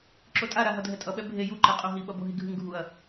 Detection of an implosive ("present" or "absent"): present